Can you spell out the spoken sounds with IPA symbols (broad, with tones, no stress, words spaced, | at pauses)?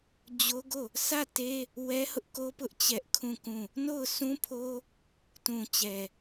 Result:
d͡ʑo˦ɡo˦˨ | sä˦˨te˦ | wɛ˦hʊ˦ʔko˦pʊ˦ʔ t͡ɕɛ˦ʔkʰũ˦˨kũ˦˨ | no˦˨ʊ̯sũ˦pʰo˦ | tũ˨ t͡ɕɛ˨